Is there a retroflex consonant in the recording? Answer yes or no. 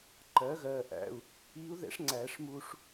yes